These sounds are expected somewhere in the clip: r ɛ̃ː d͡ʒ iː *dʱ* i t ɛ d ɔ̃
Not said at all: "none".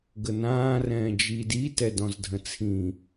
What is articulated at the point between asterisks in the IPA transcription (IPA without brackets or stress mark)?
d